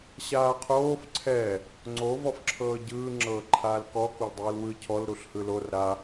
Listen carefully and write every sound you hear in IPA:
ɕ aː qʰ oː f ǀʰ ɛ | ŋ͡ǀ o v ɔ f ǁʰ ɤː ɟ ɯː ŋ͡ǁ ɤː ǃʰ aː l k ɔ k o l dˤ ɯː l w ɯ cʰ ɔ l ɾ u ɬ h ɯ l o r ɾ a

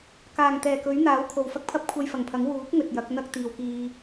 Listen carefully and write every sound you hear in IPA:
k aː˨˩ ŋ t̪ ɛː˨˩ k ɵ˨˥ ɥ n̪ aː˨˥ w kʰ o˨ w f ɐ˥ k̚ pʰ ɐ˥ p̚ kʷʰ ɐ˧ j f ɐ˨˩ ŋ pʰ ɐ˨˥ ŋ w uː˨˥ k̚ ŋ ɵ˨ t̚ j ɐ˨˥ k̚ n̪ ɐ˥ k̚ t̪ iː˨ w k iː˧

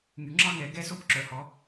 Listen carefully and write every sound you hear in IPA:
ŋ y˩˧ ŋ͡ǁ ɑ˥ ŋ ɛ˩˧ ɡ ɛ˧˥ s o˧˥ b ǁ œ˩˧ h ɔ˩˧

